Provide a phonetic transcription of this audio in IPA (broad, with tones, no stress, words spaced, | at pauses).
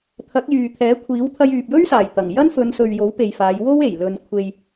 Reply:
t̪ʰɐ˨˥k̚jyː˨t̪ʰɛː˨˥kʷʰiː˨˥w t̪ʰɐ˧jyː˨p̚jɵ˥ɥsaː˨˩j t̪ɐ˨˩ŋjɐ˥n fɵ˨˧nsɵ˨ɥ jo˨˥wpe˨j faː˨˧jwo˥we˨˩j lɵ˨nkʷʰe˨j